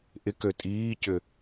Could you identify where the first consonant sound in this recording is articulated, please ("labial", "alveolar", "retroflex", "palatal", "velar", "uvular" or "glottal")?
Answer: glottal